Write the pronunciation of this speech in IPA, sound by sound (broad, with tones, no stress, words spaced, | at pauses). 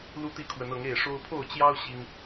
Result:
lu˦t̪i˥˨kʰwə˨˦nɤ˨˦ŋ e˥˨ɪ̯ʂo˦ʊ̯ pʰo˥˨ʊ̯t͡ɕjɑ˦ʊ̯ ɕi˦ŋ